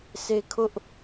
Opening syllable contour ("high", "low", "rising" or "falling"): high